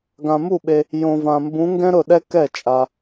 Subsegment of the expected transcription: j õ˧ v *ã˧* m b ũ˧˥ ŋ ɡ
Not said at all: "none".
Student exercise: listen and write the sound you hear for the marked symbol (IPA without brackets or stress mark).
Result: ã˧